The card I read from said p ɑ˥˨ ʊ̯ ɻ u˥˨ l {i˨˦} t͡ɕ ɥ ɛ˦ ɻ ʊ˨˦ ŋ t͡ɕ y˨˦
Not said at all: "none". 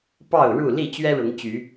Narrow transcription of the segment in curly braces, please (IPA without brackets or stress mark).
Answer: i˥˨